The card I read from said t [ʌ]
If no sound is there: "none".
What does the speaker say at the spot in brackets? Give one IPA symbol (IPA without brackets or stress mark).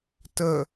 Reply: ə